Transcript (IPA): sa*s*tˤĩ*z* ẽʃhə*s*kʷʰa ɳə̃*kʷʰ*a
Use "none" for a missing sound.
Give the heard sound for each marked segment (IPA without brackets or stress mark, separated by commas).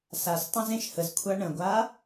s, z, z, ɡʷ